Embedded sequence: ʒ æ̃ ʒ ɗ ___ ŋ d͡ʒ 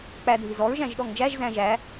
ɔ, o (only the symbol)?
ɔ